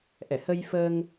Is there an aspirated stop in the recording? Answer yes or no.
no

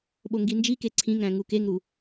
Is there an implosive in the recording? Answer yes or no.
yes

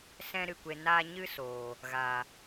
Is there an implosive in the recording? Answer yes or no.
no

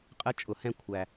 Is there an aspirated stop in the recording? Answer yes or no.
yes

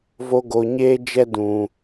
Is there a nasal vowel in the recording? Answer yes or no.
yes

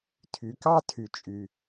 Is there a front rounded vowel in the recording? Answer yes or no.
yes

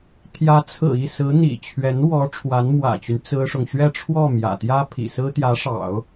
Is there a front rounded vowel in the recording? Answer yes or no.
yes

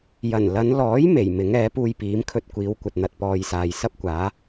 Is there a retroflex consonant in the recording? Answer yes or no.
no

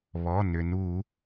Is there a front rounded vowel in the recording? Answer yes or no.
yes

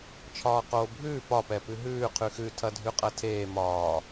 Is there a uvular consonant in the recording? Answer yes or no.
yes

